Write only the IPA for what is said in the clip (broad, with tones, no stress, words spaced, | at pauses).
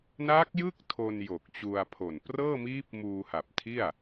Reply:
na˦˥k̚jɯ˥˩k̚ tʰo˧n jo˨˩k̚t͡ɕu˧a̯pʰo˨˩n prɤː˥˩miː˦˥p̚ muː˧ha˨˩p̚tʰi˥˩a̯